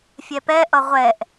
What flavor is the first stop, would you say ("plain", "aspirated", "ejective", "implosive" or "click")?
plain